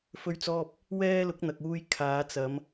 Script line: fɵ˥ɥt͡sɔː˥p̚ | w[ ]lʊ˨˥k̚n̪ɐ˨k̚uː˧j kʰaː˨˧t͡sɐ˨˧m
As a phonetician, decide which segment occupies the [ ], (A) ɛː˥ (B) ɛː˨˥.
A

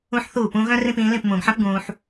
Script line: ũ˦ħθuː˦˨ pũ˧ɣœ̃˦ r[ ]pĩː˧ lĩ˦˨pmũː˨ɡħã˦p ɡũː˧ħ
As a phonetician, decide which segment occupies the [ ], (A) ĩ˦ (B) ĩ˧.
A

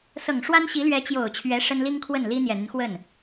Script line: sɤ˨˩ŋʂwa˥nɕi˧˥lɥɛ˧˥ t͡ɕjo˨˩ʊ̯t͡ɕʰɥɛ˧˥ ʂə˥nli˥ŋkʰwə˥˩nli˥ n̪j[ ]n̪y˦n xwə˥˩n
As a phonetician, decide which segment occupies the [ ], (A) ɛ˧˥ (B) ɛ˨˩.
B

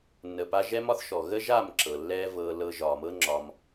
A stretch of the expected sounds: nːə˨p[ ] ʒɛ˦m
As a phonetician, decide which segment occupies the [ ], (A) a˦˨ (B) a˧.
B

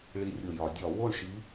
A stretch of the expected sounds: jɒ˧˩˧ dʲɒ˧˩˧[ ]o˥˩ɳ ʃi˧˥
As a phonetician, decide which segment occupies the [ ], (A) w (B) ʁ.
A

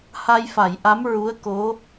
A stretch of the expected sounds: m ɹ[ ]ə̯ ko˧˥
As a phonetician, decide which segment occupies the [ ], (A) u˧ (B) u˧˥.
B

